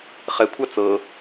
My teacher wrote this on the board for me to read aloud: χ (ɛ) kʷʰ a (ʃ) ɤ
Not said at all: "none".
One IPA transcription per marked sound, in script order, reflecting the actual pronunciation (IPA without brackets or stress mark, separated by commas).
ɛ, t͡s